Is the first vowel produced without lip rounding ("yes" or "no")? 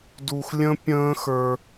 no